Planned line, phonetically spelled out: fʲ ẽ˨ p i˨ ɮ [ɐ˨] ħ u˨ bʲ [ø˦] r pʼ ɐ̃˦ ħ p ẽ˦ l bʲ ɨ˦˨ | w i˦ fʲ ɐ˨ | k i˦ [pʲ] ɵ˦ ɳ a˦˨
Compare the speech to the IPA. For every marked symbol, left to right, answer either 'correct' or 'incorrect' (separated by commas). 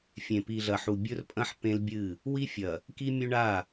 correct, incorrect, incorrect